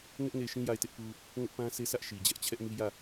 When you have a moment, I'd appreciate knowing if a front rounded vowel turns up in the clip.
no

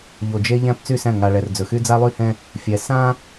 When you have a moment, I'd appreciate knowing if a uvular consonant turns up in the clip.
no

